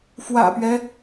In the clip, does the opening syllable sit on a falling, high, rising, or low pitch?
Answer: low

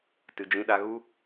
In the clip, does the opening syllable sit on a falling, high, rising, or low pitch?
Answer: low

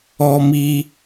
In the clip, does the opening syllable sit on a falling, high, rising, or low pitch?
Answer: high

